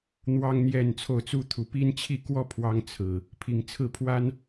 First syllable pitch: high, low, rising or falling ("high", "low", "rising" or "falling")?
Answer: high